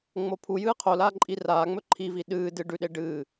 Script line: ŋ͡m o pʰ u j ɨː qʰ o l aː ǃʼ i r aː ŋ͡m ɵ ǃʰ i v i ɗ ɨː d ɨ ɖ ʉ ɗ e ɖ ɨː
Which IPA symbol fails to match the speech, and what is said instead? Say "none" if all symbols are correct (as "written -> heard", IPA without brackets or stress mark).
none